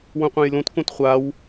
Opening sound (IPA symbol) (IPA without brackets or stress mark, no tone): w